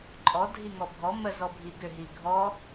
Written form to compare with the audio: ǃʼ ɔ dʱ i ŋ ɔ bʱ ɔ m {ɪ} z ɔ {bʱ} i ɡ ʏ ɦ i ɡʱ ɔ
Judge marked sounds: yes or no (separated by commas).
no, yes